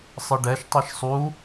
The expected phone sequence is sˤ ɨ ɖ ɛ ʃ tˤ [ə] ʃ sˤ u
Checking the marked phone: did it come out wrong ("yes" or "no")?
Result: yes